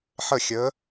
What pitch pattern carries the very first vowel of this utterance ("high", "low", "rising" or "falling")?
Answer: falling